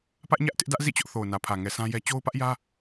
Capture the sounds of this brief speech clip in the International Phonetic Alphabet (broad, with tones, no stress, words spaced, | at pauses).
pä˦ʔɲä˦ʔtɪ˦ʔ dä˦ʔzḭ˦˨t͡ɕʊ˦ʔ θo˨ʊ̯nä˨pʰä˨ŋɛ˨ sʰã˦jɛ˦ t͡ɕo˦ʊ̯pä˦ʔjä˦